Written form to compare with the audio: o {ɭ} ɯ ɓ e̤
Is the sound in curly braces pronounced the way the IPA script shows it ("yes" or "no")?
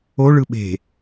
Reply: yes